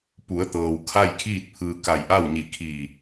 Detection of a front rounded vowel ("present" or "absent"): absent